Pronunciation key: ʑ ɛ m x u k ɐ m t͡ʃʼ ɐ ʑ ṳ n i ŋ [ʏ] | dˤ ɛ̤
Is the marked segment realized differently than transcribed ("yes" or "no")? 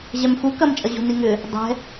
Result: no